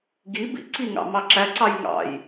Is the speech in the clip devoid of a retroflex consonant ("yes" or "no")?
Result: yes